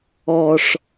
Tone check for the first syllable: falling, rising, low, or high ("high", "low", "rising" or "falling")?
low